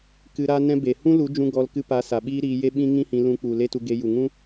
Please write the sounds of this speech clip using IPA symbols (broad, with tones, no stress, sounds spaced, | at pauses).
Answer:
k ɨ˧ ɾ a˦ n ɛ̃˦ b e˨ h ũ˦ l u˨˦ d͡ʒ ũ˧ ɡ ɔ˧ l k ɨ˧ p a˨˦ s a˨ ɓ iː˦ ɾ iː˧ j e˦ ɓ ĩ˦ ŋ ĩ˦ h ĩ˧ l ũ˧ k͡p u˨ l e˦ t u˧ ɡ e˧ j u˨ ŋ ũ˦